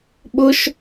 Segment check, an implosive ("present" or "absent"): present